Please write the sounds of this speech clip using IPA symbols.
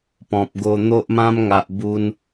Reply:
pɔ̃˨p̚ɡo˧ n̪o˦ʔmã˦mŋa˨ʔ bu˧n

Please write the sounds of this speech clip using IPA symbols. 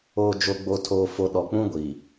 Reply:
oː˨d͡ʒo˨ ɡ͡bo˨tʰoː˨fo˨ ɗɔ˨k͡pũ˦ ɡʷiː˨

